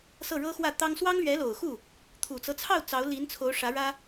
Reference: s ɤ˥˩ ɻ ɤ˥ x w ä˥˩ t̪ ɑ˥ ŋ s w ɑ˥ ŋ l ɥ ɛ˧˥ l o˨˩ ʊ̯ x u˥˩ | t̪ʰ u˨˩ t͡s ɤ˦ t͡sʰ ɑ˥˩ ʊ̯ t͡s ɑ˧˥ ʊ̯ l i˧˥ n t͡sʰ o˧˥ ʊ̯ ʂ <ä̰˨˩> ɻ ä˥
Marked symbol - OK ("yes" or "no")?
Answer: no